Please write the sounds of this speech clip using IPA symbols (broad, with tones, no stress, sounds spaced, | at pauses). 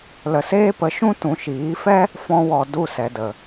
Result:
l ə˨ s eː˦ p ə˨˦ ʃ ũ˦ t ũ˨ ʃ iː˨˦ f ɛ˦ | f ɔ̃˧ w ɔ˨ d u˦˨ s ɛ˨ d ə˨